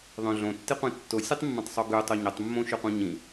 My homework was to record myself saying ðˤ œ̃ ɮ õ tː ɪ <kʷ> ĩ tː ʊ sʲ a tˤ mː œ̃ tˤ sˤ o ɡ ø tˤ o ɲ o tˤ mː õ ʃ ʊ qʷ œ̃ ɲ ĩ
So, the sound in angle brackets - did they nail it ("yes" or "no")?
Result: no